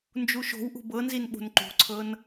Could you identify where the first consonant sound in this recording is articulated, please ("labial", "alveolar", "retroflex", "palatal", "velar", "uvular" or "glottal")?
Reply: alveolar